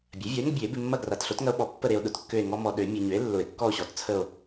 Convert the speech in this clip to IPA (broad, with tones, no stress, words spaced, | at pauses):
bʲa˩˥vʲɔ˩˥e̯ŋə˦bʲø˨˩˦e̯ bɪ˨mːɐ˦˨ ɡra˨˩˦tɬo˩˥tŋɐ˦o̯ ɓɔ˨˩˦ pːə˦˨ɾe˨o̯ ɗʊ˩˥tkːø˦˨e̯ ŋɔ˦ mɔ˨ ɗø˨˩˦ mʲø˨ɲø˩˥e̯ lːʊ˨˩˦e̯kːɔ˦˨o̯ɕɔ˩˥tt͡sʰə˦˨o̯